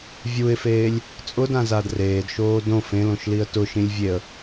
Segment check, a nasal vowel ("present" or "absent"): present